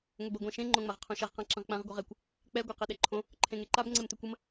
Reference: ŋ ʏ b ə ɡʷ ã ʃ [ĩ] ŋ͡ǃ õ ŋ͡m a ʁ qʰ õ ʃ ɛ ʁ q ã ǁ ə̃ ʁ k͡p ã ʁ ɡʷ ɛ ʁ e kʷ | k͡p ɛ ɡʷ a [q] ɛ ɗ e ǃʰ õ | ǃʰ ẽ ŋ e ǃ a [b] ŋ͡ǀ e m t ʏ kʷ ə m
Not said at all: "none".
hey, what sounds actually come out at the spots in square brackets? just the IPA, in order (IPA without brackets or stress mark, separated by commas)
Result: ẽ, q, b